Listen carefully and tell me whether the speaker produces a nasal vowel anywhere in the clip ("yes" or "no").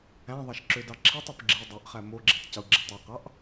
yes